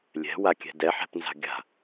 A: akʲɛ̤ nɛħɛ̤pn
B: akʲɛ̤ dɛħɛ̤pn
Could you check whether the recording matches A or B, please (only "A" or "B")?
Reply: B